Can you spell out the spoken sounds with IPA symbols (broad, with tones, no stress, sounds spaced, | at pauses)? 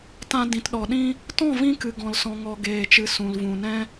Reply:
t ã˧ d ĩ˨ t ɗ ɔ˨ ɗ ĩ˧ | t ɔ̃˦˨ v ĩ˧ k ɨ˨ ɡ ɔ̃˨ l s ɔ̃˨ ŋ ɔ˨ ɡ eː˨ t͡ʃ ɨ˨ s ũ˨ l v ũ˨ n ɛ̃˧